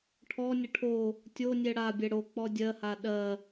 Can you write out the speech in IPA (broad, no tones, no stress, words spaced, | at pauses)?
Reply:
ʈʰɔnʲə ʈʰo | tʲonʲɛ ɽabʲɛ ɽok͡pɔ dʲɜha ɗɜ